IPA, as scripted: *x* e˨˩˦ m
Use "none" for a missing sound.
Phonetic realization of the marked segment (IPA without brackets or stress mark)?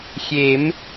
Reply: xʲ